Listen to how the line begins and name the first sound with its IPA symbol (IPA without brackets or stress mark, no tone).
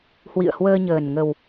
h